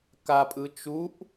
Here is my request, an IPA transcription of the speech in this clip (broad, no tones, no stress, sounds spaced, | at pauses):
k a pʼ ɯ t͡ʃ u ʔ